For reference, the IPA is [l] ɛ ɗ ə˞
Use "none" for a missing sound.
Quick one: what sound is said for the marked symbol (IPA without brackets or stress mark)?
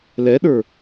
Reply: l